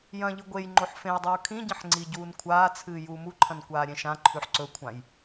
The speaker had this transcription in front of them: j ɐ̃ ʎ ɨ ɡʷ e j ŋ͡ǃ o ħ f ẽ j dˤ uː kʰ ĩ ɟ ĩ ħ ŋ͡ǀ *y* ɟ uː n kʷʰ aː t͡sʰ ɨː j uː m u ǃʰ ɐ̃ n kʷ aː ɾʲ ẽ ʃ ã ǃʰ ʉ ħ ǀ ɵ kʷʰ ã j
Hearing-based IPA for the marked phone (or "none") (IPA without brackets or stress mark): i